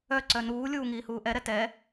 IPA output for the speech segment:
œ ǀœnuːlʲuː ŋiːhuːʔɛɾɛ tɛ

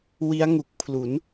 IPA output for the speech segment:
wi˦˥a̯ŋu˨˩k̚pʰlu˩˦n

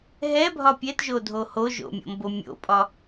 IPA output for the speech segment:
ɦɛbʱɒ pʲɛtʒodʱo hoʒo̰mʲo̰mbo mʲo̰pʼɒ

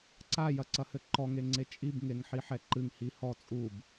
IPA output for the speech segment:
ǀajɐǀɐhɘ ǃɔŋeŋ͡ǀe t͡ʃʼibŋeŋħiħɛ ǃɨŋhi hɔ t͡sʼub

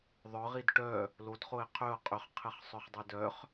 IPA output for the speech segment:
ðˤœʁ idʈœ | lodχoɪ̯ qʰøʊ̯ qʼʏχqʰɪχ sˤœχdˤedœχ

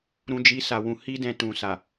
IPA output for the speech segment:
ɾũ˦d͡ʒi˦sa˧wũ˧ hi˦dɛ̃˧tũ˨sa˨

